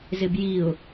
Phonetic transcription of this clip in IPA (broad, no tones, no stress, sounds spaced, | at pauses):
z ɪ b j i ʊ̯